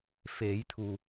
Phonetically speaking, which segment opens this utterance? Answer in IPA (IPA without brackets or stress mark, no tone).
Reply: f